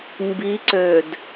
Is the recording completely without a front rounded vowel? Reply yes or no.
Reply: no